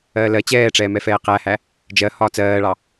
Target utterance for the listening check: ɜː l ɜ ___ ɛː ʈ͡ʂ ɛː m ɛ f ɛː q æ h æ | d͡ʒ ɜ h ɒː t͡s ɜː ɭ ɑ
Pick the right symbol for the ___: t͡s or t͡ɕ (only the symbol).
t͡ɕ